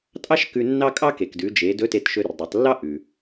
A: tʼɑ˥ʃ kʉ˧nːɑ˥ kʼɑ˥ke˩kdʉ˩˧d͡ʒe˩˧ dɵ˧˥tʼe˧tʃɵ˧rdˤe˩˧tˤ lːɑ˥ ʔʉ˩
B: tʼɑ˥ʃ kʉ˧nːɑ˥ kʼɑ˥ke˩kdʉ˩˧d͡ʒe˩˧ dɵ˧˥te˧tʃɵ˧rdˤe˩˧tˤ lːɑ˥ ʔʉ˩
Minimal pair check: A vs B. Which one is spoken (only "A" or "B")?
B